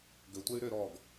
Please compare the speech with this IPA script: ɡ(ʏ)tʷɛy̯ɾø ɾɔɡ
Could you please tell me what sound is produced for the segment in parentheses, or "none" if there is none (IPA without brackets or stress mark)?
ʏ